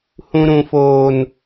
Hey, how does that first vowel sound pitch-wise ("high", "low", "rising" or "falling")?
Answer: high